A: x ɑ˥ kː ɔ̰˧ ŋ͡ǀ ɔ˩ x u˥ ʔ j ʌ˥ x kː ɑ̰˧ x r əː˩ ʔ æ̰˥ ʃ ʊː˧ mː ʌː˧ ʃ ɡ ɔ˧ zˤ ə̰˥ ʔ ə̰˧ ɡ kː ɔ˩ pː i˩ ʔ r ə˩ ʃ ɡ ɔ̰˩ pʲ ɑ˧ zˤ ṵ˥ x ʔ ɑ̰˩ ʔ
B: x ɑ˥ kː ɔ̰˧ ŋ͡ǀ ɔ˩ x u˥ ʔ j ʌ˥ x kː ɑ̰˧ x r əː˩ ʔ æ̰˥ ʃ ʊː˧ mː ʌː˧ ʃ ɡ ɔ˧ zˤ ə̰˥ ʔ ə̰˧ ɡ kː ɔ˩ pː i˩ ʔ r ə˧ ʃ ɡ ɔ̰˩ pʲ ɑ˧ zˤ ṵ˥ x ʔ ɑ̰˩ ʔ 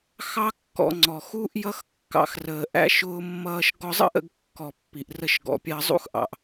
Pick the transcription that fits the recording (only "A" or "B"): B